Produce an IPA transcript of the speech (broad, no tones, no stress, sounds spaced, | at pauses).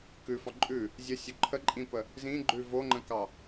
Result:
k ʉ f ɒ ǃʼ ʉ | zʲ ə sʲ o ǃʰ ə ǃʼ ĩ p ə | z ĩ ɡ͡ǃ ʉ v o ŋ͡ǃ ə̃ k ɑ